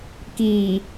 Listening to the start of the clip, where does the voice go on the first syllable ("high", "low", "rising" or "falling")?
low